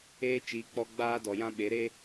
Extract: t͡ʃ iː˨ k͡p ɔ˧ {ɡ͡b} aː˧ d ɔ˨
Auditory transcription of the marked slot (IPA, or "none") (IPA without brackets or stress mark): ɡ͡b